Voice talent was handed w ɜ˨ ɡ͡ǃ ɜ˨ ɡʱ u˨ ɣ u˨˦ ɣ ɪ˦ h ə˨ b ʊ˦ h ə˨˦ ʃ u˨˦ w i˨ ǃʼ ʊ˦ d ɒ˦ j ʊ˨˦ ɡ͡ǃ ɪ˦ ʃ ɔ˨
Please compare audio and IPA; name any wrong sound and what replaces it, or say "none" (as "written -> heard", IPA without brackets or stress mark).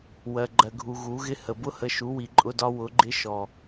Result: j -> w